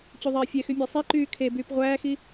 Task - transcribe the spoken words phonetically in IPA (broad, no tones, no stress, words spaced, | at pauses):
t͡ɕyðˤeːfʲɛxy mʲɑsˤiǃyː kʰe byːpʁʷæːxi